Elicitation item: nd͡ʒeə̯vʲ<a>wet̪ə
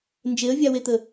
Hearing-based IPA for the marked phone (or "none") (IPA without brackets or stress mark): a